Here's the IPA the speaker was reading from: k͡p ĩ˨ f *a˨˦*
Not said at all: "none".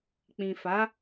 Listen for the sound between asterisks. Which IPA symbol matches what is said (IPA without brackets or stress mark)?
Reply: a˨˦